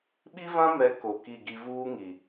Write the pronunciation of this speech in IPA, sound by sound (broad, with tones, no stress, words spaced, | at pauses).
ɓi˦vã˦mɛ˨˦ ko˨ki˦˨ɡi˦ vuː˦ŋi˨